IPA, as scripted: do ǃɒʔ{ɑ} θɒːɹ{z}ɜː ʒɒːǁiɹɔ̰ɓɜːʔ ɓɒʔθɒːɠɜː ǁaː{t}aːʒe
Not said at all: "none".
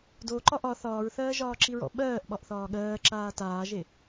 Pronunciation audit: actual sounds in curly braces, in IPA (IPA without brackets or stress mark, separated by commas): ɒ, θ, t